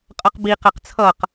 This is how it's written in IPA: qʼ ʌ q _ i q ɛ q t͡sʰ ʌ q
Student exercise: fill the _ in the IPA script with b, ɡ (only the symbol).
b